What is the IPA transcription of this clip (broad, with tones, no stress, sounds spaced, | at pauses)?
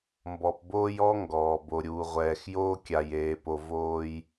m b ɔ˨ p b oː˦ j ɔ˦ ŋ ɡ ɔː˨ b o˨ ɾʲ uː˨ ʁʷ ɛː˨ x j oː˦ kʲ a˨ j eː˨ p o˨ v oː˦ j